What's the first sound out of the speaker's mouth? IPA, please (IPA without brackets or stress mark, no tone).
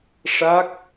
ʂ